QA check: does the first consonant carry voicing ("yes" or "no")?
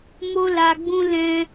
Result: yes